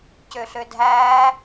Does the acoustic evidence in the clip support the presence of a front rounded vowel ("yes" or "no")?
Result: yes